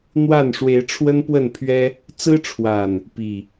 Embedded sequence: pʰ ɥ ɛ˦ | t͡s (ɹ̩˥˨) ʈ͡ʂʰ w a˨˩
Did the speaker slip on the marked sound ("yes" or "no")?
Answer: yes